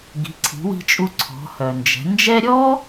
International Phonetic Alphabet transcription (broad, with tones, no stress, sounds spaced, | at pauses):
ɡ i̤˩˧ ǀʰ i̤˩˧ w i̤˧ t͡ʃʼ u˧ ǀʰ ɔ̤˩˧ h œ˩ n d͡ʒ ɛ̤˩˧ n d͡ʒ ɛ˥ ɾʲ ɔ˥